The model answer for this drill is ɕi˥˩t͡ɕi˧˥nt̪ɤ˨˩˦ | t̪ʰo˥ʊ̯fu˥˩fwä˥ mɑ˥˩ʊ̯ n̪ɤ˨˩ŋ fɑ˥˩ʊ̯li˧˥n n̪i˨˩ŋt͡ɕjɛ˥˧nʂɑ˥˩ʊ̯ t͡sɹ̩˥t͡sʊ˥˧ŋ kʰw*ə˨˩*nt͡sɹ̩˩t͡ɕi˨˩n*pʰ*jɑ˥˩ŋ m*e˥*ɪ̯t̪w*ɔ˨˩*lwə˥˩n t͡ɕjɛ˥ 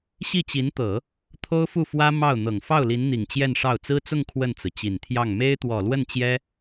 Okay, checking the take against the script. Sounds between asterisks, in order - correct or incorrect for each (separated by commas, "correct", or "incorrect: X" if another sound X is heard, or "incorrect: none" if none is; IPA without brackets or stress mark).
incorrect: ə˥˩, incorrect: t̪ʰ, correct, correct